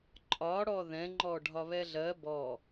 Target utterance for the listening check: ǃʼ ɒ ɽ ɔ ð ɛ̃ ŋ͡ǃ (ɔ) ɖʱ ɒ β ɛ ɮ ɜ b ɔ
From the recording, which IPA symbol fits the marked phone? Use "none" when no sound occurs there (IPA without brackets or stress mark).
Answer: ɔ